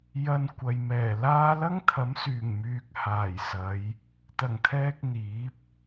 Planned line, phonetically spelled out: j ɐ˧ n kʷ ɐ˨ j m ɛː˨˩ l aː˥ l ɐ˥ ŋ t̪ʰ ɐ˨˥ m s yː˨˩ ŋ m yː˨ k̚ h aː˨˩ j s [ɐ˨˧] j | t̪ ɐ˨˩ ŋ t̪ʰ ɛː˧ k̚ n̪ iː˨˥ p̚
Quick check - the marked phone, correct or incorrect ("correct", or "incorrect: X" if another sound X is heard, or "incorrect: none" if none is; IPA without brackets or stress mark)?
correct